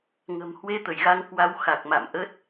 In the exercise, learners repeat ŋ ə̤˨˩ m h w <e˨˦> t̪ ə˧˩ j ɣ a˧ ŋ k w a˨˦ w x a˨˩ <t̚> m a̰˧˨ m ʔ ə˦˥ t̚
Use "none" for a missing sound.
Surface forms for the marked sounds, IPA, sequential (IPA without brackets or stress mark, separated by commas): e˧, k̚